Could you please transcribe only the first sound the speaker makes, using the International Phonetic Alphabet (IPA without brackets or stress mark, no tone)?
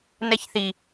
n